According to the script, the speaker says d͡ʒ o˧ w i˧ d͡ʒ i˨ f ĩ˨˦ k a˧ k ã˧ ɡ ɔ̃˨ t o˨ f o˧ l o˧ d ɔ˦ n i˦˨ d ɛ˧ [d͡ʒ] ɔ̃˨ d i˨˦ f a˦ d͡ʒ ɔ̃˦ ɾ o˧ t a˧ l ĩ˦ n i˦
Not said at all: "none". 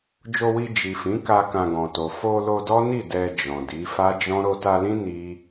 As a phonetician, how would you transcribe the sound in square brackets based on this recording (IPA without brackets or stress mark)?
d͡ʒ